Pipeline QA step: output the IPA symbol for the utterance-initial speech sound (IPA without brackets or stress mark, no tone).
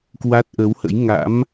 k